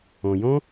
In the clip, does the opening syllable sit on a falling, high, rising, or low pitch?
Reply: low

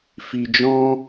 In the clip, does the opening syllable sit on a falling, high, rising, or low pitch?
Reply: low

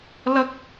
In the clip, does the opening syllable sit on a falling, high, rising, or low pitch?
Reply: high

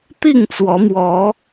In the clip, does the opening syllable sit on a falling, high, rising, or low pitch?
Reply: falling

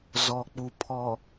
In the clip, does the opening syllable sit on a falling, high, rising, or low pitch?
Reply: low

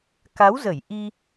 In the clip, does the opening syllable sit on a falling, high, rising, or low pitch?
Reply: rising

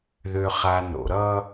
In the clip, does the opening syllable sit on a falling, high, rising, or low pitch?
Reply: low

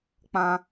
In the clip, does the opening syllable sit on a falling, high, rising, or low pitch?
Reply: high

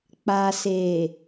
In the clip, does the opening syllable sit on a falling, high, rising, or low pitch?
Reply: low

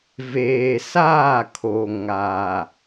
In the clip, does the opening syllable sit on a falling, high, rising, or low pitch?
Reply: low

